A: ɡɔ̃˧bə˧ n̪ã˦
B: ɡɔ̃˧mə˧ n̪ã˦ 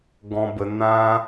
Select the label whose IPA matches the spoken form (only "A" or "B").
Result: A